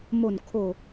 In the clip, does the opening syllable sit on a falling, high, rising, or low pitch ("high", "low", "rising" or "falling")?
falling